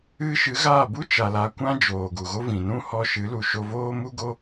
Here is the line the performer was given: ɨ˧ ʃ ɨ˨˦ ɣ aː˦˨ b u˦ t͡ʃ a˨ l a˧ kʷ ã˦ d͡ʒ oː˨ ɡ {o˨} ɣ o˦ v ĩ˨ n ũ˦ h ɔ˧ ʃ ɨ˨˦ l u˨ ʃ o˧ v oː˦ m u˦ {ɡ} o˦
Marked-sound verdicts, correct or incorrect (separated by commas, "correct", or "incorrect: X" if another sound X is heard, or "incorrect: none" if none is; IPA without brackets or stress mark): incorrect: u˨, correct